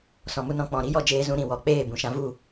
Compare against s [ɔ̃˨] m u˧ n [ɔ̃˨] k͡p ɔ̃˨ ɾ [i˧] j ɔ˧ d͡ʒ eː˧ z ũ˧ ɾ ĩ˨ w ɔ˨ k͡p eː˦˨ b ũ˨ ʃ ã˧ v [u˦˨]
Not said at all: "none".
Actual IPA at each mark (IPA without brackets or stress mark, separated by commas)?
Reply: ɔ̃˨, ɔ̃˨, i˦, u˦˨